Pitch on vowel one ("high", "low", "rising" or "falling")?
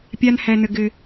high